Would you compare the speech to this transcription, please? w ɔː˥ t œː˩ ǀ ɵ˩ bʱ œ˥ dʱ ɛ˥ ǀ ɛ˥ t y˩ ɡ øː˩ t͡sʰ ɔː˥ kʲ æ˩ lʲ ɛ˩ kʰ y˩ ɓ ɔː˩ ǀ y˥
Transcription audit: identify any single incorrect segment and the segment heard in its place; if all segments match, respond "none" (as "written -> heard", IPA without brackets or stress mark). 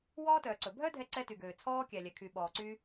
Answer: none